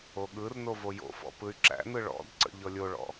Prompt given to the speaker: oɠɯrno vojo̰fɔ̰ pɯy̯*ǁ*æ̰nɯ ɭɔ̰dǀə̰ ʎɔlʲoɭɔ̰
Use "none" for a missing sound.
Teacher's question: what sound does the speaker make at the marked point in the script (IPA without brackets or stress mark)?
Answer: ǁ